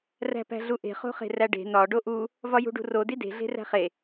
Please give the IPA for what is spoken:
ræ̤pæ̤ɮuʔe̤ χo̤χe̤ræɖe̤ nɒ ɖoʔu | vɒjṳɖṳro dide̤ ɮe̤ræ̤χe

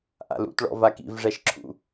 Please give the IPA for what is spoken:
ʔa̰lṵtɭɔ̰va kḭvʐɛʃǁʰṵ

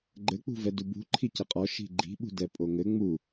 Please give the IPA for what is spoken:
ɡ͡ǃɘ k͡pṳvɛdubṳ ǃʰicɘqʼɔ ʃi̤ɡ͡ǃi̤ ɓṳdɛpʼoŋɘ ŋ͡mu

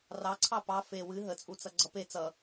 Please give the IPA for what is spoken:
rɑǀʰɑ pɑ fe wɨ ɦət͡sʼut͡sʌ ɡ͡ǀʌpe t͡sʌ

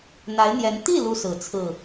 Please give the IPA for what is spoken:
n̪a˧˥ɪ̯n̪jɛ˧˥n t̪i˥˩ lu˥sɹ̩˨˩ t͡sʰɹ̩˥˩

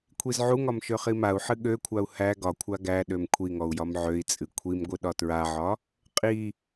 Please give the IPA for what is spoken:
kʷʰizʕuŋɒm ʃøχimau̯ħɨ ɠøkʷʰau̯ hæ ɡɒkʷʰa ɡæɗøm kʷʰiŋɔu̯ jɒmʕøi̯t͡sʼɨ kʷʰimɡʷɨ ɗɒtɹaʕɒ | qʼi

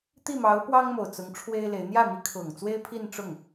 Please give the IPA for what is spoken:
t̪i˥˩mɑ˧˥ʊ̯ pwɑ˥ŋmo˨˩ʊ̯ t͡sʊ˧˥ŋʈ͡ʂʰwe˥ɪ̯le˧˥ɪ̯ n̪jä˥˩mi˧˥kʰʊ˨˩ŋ t͡swe˥ɪ̯pʰi˥˧n ʈ͡ʂʊ˥˩ŋ

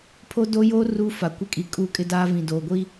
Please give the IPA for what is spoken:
pʰo˦do˦joː˦ ruː˦fa˨kʷɪ˦kʼi˨ kʼuː˦kʼɪ˦daː˦vĩ˨ doː˨ɡʷi˦

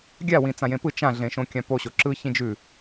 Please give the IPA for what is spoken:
ɡʲa wĩt͡sãjẽpɯ t͡ʃã ɮẽʃõkʲãpo ɕoǁɯ çĩd͡ʒʉ

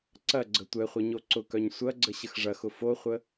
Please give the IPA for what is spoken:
ǀɐɡ͡ǀə tʷɛχʷœ ɲoǀʊkœɲ sʷɐɡ͡ǀə ɕəxʐɐxʊ foχʷə

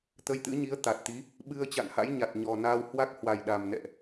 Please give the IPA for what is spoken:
t̪ə˧jt̪ɨ̰˧˥ɲi˨˦ə̯ t̪a˨˩t̚t̪i˨˦ | ɓɨ˧ə̯ t͡ɕa̰˧˨nha̰˧˥jɲa˨˩t̚ ɲɔ˨˩naː˧w hwa˦˥k̚hwa˨˩jɗa˨˩m nɛ̰˧˨ʔ

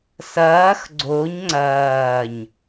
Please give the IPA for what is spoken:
sɐːx ɡ͡ǀoɲ ŋ͡ǀɐːɲ

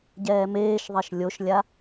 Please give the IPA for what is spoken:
ɟɛːmeːʃðˤɛʃ lʲoʃlʲa

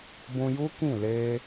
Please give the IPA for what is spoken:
bũ˧ju˦ kĩ˦˨le˧

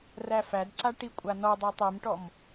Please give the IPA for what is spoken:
ræfædǀa ʈikʷʼanɔdˤætˤ imʈɔm

